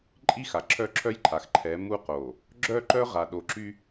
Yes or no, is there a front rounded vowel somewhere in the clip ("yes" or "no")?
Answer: yes